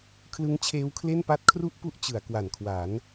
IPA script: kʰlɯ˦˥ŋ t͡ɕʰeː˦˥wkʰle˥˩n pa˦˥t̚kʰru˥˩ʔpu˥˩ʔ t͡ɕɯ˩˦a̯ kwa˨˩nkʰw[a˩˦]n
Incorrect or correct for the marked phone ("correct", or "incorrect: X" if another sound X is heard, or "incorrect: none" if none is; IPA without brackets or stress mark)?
correct